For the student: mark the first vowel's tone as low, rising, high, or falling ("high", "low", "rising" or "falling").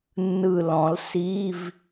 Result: falling